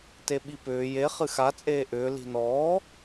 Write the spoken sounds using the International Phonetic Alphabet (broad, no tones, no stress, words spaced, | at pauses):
teɓipʏː je χɨxa t͡sʼeːʔʏː li̤nɔː